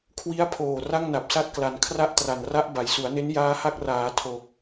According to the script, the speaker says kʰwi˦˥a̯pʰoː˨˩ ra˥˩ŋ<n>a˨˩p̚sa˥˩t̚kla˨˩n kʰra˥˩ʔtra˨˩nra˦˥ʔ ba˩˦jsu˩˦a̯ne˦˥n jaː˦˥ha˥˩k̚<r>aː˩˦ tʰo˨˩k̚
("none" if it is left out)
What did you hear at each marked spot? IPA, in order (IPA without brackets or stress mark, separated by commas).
n, r